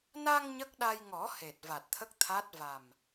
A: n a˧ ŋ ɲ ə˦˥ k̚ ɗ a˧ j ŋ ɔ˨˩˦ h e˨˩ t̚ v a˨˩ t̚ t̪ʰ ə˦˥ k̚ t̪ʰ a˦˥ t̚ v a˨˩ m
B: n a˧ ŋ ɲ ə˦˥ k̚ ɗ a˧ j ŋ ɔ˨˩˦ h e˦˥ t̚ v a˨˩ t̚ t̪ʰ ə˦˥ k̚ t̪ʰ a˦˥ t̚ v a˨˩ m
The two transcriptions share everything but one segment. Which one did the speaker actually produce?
A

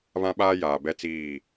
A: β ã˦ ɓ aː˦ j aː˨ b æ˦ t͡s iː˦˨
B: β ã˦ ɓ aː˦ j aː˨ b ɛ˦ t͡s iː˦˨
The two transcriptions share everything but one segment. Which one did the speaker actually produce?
B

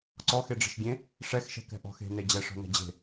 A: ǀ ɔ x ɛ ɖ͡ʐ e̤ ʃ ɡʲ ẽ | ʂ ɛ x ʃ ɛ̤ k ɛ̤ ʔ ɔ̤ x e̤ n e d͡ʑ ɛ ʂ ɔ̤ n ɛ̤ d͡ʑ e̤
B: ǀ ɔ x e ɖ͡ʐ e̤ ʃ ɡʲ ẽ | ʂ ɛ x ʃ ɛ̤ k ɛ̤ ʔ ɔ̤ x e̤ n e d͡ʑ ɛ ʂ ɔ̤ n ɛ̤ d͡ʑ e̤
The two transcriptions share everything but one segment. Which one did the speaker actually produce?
B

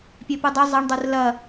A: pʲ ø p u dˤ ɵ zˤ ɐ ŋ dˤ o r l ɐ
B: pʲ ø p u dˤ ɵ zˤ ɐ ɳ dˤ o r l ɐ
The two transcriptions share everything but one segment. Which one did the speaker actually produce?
B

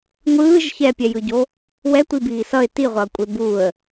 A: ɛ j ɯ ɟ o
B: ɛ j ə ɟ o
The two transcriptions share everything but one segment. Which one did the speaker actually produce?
A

